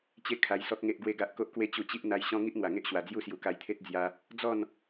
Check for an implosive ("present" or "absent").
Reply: absent